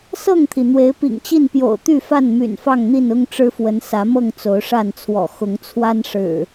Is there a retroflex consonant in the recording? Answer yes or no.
yes